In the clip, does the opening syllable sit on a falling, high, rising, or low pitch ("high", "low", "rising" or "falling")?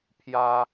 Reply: high